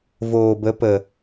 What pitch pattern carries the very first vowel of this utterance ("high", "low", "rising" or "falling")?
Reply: low